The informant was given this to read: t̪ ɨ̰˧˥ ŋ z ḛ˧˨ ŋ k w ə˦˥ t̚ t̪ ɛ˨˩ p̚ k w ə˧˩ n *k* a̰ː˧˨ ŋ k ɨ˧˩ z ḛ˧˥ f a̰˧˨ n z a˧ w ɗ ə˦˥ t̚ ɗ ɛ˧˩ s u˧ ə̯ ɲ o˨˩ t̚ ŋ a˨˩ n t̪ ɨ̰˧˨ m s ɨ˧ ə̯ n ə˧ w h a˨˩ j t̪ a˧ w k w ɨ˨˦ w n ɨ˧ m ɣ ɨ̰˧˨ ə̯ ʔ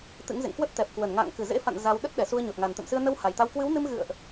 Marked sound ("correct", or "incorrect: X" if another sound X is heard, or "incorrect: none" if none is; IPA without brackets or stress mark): incorrect: ŋ